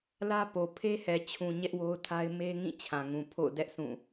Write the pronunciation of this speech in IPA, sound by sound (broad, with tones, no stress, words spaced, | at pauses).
lä˦po˨ pʰe˦hɛ˨t͡ɕʰũ˨ ɲɛ˦ʔwo˦ʊ̯tʰa˦ɪ̯ me˦ŋĩ˦˨ t͡ɕʰã˨ŋũ˨ pʰo̰˦˨ʊ̯dɛ˦ʔ sũ˦˨